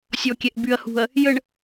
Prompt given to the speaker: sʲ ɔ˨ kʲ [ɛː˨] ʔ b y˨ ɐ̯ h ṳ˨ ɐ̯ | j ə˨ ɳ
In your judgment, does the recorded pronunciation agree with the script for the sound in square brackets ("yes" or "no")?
no